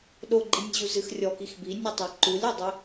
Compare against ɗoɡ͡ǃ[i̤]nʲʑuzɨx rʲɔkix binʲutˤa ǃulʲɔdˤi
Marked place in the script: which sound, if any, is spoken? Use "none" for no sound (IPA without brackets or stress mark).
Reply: i